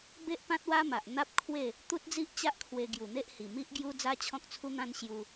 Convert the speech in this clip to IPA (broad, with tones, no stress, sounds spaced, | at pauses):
b e˦ ʔ p ã˦ t̚ w a˦ m a˨ ʔ n̪ a˦ p̚ kʰ w e˥˧ | t̪ u˦ t̚ d͡z i˦ ʔ t͡ɕ a˦ ʔ kʰ w e˧ ɡ j u˨˩ n̪ e˦ ʔ h i˨˩ m i˦ ʔ ɡ j u˦ d͡z a˦ t͡ɕʰ ɔ̃˦ k̚ t͡sʰ u˦ n̪ ã˦ n ɕ j u˦